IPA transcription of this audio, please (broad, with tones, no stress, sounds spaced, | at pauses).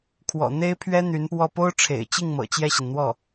kʰ w ɔ̰˨˩ n̪ e˥ ɪ̯ pʰ ɥ ɛ˥ n̪ y˧˥ n p w ɔ˥˩ p o˥ ʊ̯ ʈ͡ʂʰ ḛ˨˩ ɪ̯ t͡ɕ i˥˩ ŋ m ɤ̰˨˩ t͡ɕ j ɛ˥˩ ɕ i˩ n n̪ w ɔ˥˩